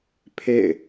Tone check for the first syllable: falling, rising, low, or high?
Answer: falling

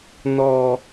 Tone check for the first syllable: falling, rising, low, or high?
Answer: low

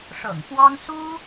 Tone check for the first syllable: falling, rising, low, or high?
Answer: low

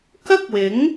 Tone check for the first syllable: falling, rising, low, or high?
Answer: high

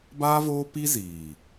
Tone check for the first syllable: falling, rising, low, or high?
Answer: high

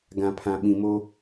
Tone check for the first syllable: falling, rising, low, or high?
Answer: low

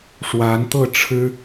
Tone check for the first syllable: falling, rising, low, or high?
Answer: rising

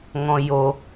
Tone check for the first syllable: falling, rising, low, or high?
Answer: low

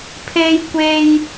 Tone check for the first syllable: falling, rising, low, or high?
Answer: high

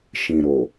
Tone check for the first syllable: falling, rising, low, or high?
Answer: low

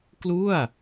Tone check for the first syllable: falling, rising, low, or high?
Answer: falling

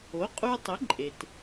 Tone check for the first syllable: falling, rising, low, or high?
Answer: rising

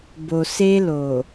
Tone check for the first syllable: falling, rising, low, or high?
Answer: low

